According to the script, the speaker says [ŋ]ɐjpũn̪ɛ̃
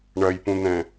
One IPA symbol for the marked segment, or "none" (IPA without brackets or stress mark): ɳ